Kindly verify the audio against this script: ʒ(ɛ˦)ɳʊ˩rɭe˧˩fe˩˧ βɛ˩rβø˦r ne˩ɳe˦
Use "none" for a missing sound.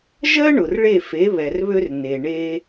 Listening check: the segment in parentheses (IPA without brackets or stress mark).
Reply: ɜ˦